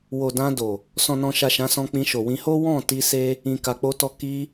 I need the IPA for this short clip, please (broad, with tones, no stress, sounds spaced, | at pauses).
w o˨ d ã˧ d o˨ | s ɔ̃˨ n ɔ̃˨ ʃ a˨ ʃ ã˨˦ s ɔ̃˧ k͡p ĩ˧ ʃ o˨ w ĩ˧ h o˦ w ɔ̃˦˨ t i˧ s e˦ | ĩ˨ k a˨ k͡p o˧ t ɔ˧ k i˧